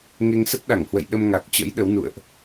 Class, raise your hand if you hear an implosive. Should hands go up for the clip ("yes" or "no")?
yes